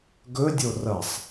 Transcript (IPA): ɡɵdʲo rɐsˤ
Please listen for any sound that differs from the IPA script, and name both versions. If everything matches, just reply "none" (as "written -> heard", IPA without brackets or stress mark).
none